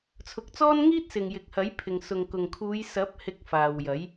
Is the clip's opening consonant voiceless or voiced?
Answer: voiceless